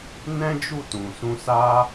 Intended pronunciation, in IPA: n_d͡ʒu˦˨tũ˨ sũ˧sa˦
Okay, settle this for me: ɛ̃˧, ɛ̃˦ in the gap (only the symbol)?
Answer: ɛ̃˦